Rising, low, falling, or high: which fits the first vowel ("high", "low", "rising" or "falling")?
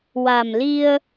low